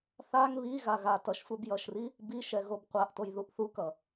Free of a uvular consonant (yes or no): no